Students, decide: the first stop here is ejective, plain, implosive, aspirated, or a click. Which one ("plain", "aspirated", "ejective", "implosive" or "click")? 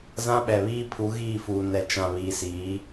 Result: implosive